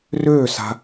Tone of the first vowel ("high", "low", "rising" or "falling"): falling